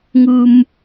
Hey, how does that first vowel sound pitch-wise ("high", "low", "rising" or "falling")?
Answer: low